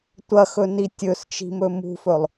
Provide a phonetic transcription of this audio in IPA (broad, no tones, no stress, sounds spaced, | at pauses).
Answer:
tʷ ɐ x ɵ n i tʲ ɵ s t͡ʃ i̤ m ɵ m ṳ f ɵ lˠ